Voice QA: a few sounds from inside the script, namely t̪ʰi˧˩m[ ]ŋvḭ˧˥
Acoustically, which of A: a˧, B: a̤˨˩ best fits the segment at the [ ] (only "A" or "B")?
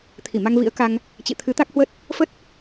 A